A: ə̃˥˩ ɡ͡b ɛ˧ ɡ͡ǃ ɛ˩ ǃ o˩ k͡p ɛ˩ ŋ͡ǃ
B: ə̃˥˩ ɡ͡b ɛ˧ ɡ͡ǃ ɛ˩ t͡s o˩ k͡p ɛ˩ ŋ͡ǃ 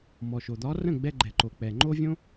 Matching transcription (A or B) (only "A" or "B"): A